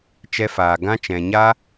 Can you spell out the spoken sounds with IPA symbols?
t͡ʃ ɛ˧ f aː˨ ɡ ã˧ t͡ʃ ɛ̃˨ ɲ a˧

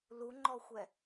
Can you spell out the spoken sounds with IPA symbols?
l u ŋ͡ǃ ɔ xʷ ɛ

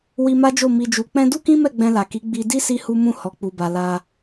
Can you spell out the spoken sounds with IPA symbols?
w i˧ m a˦ d͡ʒ o˦˨ m i˨ d͡ʒ u˨ k͡p ɛ̃˧ d u˦ k ĩ˦ m ɛ˦˨ ɡ͡b ɛ̃˧ l a˨ k i˨˦ ɡ͡b i˧ d i˦ s i˧ h u˧ m ũ˧ h ɔ˨ k͡p u˨ b a˨ l a˧

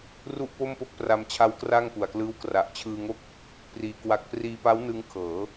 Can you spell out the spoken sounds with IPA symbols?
r u˥˩ ʔ p o˥˩ m p o˥˩ k̚ p r a˧ m t͡ɕʰ a˦˥ w k r a˥˩ ŋ p u˨˩ a̯ k l ɯː˦˥ w k r a˨˩ ʔ t͡ɕʰ ɯː˧ ŋ o˥˩ k̚ | p r iː˧ k w a˦˥ k̚ p r iː˧ p a˦˥ w n ɯ˦˥ ŋ kʰ ɤː˩˦

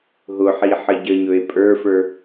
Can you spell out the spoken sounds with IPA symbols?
ɦ ʊ ħ i ħ ə ɟ ə ɲ ɵ e̯ pʼ ə˞ f ə˞

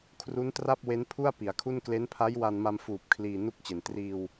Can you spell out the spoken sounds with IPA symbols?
kʰ r u˦˥ n t r a˥˩ p̚ w e˦˥ n pʰ u˥˩ a̯ p i˩˦ a̯ kʰ u˥˩ n k l e˦˥ n pʰ a˦˥ j w a˧ n m a˧ m f uː˨˩ p̚ kʰ l iː˧ n u˥˩ k̚ t͡ɕ e˨˩ n t r iː˧ w

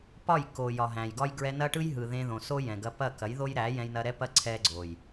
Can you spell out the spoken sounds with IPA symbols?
p ɒ˦˨ j k o˨ j ɒ˨ ɦ æ̃˨ j ɡ ɒ˦ j ɡ ɹ ɛ˧ n ɐ˦ ʈ ɯ˦ j ɦ ɯ˨ ð ẽ˧ ð õ˨ s o˦ j ɛ̃˨ ɡ ɐ˧ p ɐ˦˨ k ɐ˨˦ j ð o˦ j ɾ æ˨˦ j ɛ̃˧ j n ɐ˧ ɾ ɛ˦ p ɐ˦ ǀʰ ɛ˦ ɡ͡ǀ o˨ j

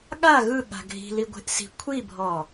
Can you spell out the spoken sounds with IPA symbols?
ɠ a ɣ ɯ ɠ a̤ ɡʱ i̤ l i ɡʷ e̤ ʔ s i̤ kʷʰ i bʱ ɔ

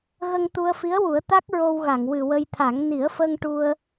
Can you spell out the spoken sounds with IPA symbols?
ɣ ə˧ ŋ t̪ u˧ ə̯ f i˧˥ ə̯ w u˨˩˦ ə̯ t̪ a˦˥ k̚ ɹ o˧ w ɣ a˨˩˨ ŋ w ɨ˨˩ w ə˧ j t̪ʰ a˨˩˦ ŋ n i˨˩˦ ə̯ f əː˧ ŋ ʈ u˧ ə̯

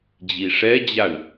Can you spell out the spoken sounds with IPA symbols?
d͡ʑ i ʂ ɛ d͡ʑ a ɳ

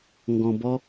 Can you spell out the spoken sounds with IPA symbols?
ŋ ɡ ɔ̃˧ b ɔ˦

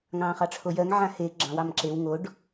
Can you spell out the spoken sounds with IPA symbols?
ŋ ɑ̃ː χ ɑ ʈ͡ʂʰ o j ɜ ŋ ʕ ã h e ɡ͡ǁ ɑ̃ w ɑ m ǁ e w ŋ o ɖ

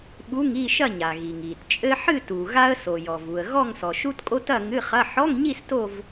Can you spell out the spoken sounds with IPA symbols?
ɓ u˧˥˧ ŋ i˥˧ ʃ ɐ˥˧ ɲ a˩ ɣ i˩ ŋ i˩ t t͡ʃʼ ɘ˥ ħ ɨ˥˧ t u˩ ɣ a˥ ə̯ s o˩ j ɔ˩ v u˩ ə̯ ɣ ɔ˥˧ ŋ s ɔ˩ ʃ u˥ t kʼ o˥ t ɐ˥˧ ŋ ɨ˧˥˧ χ ɐ˧˥˧ ħ ɔ˧˥˧ ŋ ɲ i˥˧ s t o˥˧ v

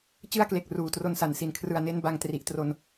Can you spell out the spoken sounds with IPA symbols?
t͡ɕ ɯ˥˩ a̯ k l e˨˩ k̚ r uː˨˩ t r o˧ n s a˨˩ n s i˨˩ n kʰ r ɯ˨˩ a̯ n e˦˥ n b a˧ ŋ t r i˨˩ ʔ t r o˧ n

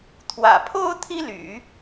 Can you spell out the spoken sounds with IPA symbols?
t̪ʰ w ä̰˨˩ pʰ o˥ ʊ̯ t̪ʰ i˥ l y̰˨˩˦

